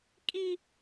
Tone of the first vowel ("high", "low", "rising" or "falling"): high